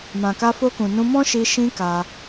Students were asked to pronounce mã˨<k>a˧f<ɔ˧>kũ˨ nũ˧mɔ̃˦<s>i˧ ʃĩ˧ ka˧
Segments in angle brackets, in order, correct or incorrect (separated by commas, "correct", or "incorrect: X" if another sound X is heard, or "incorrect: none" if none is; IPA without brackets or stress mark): correct, incorrect: o˧, incorrect: ʃ